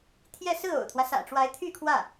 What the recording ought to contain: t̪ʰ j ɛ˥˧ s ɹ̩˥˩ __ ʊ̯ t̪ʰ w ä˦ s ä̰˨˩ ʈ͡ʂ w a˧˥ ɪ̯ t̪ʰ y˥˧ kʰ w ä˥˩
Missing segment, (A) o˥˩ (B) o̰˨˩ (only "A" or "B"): B